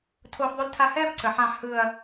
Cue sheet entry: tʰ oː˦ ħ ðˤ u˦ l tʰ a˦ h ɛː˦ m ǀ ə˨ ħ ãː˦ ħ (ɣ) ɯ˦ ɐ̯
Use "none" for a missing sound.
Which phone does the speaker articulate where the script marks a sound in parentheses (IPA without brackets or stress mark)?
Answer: h